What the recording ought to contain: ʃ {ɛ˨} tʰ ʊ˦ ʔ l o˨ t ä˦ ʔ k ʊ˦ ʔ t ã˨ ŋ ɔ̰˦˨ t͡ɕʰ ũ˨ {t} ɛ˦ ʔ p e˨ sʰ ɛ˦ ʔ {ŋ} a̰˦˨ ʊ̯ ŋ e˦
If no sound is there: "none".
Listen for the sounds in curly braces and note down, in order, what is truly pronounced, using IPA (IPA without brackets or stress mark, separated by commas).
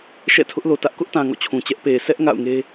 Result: ɛ̰˦˨, t͡ɕ, ŋ